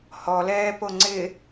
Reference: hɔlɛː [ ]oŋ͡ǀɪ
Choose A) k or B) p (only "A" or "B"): B